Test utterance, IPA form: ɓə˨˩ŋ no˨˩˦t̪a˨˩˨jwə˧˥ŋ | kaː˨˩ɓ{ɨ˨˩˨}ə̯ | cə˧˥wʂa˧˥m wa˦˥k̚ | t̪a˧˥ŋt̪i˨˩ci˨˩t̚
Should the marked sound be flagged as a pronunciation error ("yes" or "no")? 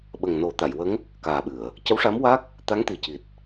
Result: no